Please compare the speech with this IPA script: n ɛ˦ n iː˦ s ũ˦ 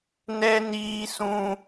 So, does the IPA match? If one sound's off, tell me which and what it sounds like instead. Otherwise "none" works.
none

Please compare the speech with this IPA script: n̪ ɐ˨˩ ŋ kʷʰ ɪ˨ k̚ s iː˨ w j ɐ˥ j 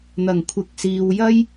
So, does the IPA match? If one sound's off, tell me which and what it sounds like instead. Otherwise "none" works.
ɪ˨ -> ɪ˨˥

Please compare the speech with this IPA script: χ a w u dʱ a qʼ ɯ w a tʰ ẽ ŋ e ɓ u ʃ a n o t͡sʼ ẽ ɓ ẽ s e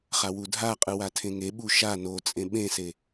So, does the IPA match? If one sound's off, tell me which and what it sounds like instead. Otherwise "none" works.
none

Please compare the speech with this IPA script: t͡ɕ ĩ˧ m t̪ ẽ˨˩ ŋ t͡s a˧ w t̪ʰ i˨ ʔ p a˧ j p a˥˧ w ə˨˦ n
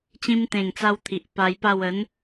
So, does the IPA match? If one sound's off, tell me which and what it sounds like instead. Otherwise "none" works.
none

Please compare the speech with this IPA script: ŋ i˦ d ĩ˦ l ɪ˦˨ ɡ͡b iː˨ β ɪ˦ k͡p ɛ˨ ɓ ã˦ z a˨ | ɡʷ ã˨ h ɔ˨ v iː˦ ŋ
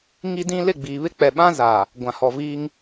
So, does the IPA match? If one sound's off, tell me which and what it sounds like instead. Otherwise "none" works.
none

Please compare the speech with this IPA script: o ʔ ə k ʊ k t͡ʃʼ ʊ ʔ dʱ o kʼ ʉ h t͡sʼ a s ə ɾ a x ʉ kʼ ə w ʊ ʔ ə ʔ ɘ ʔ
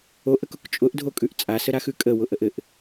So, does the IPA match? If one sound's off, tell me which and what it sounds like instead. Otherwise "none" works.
h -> ʔ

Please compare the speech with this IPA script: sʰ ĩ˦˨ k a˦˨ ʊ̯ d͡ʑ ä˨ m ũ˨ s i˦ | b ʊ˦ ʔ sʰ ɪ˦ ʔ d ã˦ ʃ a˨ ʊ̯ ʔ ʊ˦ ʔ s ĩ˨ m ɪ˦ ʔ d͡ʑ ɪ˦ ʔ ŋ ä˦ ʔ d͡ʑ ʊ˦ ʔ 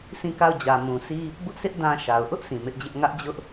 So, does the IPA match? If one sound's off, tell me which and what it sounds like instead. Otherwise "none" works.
none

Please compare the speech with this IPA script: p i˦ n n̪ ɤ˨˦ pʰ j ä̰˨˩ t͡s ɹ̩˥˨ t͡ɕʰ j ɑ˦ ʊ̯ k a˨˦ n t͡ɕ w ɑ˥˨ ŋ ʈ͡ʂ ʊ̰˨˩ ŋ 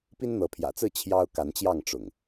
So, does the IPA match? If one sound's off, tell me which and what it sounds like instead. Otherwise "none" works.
w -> j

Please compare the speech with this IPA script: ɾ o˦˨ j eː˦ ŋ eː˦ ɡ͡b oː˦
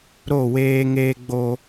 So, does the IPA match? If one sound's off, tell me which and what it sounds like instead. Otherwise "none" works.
j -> w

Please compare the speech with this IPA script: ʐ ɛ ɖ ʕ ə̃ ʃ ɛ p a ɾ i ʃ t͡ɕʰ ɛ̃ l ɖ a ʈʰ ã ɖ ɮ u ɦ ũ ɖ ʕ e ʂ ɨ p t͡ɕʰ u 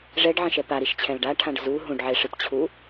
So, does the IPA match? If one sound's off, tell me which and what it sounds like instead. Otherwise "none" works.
ɮ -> z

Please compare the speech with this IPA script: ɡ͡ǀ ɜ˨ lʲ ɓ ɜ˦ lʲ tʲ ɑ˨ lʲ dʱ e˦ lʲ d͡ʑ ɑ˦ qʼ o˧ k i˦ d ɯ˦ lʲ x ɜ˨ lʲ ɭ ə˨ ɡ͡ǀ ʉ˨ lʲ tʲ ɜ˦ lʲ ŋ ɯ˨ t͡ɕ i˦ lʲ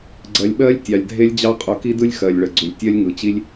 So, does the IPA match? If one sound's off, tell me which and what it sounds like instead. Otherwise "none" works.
none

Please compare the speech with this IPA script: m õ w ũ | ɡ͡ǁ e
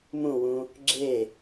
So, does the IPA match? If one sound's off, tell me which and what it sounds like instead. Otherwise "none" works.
õ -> ũ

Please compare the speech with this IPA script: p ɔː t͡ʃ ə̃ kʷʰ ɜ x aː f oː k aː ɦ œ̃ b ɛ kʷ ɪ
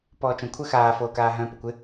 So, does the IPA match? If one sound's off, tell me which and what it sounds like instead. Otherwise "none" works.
b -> p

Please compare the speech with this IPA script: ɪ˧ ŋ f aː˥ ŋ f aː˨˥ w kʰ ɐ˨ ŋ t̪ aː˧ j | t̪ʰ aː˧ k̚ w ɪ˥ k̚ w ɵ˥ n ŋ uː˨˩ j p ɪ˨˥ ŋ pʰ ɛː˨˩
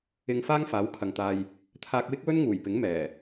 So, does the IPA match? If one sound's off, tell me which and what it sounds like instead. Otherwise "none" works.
pʰ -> m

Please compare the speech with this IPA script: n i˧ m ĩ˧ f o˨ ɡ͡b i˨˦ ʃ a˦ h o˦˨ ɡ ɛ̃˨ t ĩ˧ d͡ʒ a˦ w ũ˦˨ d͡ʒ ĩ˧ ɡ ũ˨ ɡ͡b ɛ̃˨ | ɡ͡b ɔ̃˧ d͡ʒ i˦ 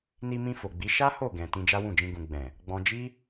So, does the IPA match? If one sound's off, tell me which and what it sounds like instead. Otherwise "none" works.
none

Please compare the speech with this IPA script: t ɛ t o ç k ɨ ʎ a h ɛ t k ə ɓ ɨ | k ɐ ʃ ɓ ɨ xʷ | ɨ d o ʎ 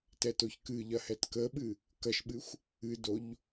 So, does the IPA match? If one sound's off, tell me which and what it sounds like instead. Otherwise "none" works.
a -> ɐ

